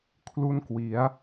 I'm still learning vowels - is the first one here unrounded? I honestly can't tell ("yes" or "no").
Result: no